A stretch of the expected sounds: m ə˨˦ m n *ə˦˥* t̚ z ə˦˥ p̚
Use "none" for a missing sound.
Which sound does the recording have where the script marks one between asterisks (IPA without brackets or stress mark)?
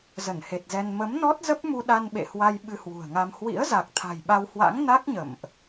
ɔ˦˥